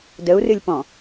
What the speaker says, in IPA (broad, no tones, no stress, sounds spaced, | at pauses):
d ə u̯ r ɨ lʲ p ɔ̃